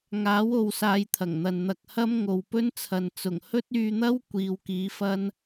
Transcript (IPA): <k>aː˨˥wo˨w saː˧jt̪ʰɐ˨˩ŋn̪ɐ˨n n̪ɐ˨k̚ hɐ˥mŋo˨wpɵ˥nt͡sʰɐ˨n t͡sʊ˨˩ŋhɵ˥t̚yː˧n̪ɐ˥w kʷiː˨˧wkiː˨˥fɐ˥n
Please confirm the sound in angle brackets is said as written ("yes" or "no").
no